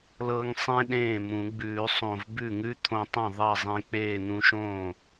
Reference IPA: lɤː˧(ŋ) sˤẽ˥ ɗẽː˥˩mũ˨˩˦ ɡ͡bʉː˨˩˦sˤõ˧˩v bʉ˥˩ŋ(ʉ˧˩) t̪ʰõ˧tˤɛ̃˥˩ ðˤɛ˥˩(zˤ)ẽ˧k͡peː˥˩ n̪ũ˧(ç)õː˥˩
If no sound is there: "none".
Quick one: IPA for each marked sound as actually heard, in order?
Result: ŋ, ʉ˥, zˤ, ʃ

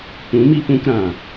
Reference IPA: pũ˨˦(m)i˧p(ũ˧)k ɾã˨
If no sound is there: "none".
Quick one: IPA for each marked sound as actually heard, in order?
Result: m, ũ˧

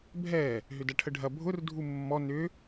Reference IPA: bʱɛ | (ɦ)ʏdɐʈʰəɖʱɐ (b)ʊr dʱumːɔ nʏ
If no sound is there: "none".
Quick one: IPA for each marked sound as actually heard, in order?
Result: ɦ, bʱ

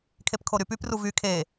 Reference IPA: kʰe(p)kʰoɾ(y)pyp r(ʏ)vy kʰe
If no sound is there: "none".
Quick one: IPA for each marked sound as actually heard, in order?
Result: p, y, u

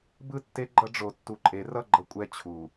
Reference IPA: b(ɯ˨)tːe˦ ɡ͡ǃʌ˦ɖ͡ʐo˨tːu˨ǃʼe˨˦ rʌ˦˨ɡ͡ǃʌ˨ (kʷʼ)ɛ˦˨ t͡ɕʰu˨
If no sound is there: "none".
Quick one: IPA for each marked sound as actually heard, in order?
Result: ɯ˦˨, kʷʼ

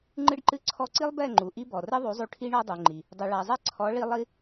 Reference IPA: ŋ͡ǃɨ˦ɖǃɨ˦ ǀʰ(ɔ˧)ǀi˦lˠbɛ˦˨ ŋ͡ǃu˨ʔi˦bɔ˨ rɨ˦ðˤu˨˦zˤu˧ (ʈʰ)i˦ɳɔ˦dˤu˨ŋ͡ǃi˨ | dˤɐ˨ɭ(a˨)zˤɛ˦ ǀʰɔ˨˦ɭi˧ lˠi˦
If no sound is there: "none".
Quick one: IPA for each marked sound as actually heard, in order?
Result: ɔ˧, ʈʰ, a˨

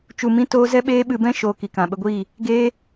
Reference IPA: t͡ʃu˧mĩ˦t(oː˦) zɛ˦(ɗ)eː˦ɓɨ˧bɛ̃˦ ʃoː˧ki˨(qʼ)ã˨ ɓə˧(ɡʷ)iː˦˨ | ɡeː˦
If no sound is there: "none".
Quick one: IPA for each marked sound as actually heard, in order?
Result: oː˦, ɓ, k, ɡʷ

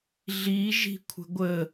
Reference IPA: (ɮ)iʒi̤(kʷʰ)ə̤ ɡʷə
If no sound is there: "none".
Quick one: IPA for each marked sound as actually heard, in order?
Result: ɮ, kʷʰ

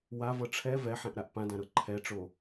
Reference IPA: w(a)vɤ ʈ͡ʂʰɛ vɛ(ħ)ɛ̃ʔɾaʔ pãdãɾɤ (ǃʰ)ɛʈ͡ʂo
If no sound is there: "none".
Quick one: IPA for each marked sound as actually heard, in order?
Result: a, ħ, ǃʰ

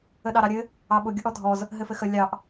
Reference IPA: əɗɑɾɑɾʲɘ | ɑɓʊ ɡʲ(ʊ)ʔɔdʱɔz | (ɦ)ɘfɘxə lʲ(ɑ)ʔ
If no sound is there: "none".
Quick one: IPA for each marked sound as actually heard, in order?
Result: ʊ, ɦ, ɑ

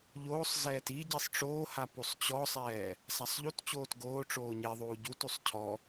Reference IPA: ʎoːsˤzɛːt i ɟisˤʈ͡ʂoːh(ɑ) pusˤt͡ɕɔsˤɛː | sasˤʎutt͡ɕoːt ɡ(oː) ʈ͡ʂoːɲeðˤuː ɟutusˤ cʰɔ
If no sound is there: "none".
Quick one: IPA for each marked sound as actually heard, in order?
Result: a, oː

